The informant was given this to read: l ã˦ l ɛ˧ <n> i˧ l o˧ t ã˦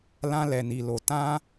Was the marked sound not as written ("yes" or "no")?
no